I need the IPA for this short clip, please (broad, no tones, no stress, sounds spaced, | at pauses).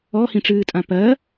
ɔ h ĩ ʈ͡ʂ ɨː tʼ ã p ɜ